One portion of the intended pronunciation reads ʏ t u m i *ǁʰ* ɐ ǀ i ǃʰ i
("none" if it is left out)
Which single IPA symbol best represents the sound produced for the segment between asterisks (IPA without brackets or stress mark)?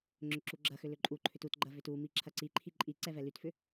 ǁʰ